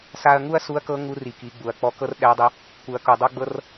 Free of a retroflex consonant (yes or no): yes